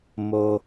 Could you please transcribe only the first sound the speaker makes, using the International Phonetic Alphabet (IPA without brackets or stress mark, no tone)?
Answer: m